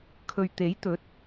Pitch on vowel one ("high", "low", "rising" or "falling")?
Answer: low